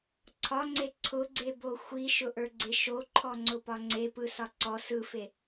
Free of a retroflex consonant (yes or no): yes